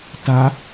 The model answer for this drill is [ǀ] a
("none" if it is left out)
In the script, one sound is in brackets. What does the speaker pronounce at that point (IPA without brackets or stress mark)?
t